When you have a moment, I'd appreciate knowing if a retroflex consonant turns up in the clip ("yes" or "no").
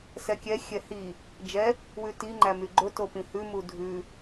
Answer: no